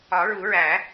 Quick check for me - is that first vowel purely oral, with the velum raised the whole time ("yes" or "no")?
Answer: yes